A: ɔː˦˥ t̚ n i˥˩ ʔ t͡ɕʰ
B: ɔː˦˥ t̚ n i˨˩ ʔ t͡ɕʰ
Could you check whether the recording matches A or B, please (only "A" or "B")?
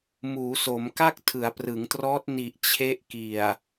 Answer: B